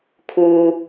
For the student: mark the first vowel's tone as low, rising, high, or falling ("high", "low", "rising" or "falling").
low